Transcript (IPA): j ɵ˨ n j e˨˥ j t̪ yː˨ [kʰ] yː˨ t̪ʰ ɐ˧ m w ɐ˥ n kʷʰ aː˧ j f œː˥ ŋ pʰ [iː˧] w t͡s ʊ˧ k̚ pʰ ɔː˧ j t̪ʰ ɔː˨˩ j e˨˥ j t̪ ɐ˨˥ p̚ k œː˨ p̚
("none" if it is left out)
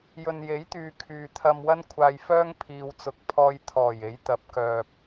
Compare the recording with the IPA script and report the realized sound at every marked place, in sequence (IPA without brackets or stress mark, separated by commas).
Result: kʰ, iː˧